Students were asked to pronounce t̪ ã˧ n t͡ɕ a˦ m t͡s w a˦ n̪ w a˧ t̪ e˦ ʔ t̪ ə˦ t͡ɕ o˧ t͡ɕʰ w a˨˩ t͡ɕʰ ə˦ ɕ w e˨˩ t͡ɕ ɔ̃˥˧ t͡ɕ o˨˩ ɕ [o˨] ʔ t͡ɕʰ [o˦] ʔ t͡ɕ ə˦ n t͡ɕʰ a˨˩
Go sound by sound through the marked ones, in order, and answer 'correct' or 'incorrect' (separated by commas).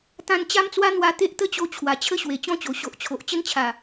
correct, incorrect